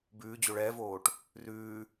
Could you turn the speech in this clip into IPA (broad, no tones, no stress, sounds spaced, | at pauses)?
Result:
b ʉː d͡ʑ o ɭ ɛː v oː ʈ | r ʉː